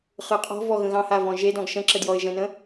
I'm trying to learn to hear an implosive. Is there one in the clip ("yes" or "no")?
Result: no